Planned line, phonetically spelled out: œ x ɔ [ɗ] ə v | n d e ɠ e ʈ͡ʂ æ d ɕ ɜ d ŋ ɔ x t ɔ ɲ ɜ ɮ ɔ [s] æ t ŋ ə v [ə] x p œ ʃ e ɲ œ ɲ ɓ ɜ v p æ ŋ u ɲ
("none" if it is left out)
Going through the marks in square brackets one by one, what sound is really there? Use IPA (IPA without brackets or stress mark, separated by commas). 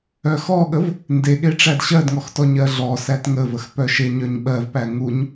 ɠ, s, ə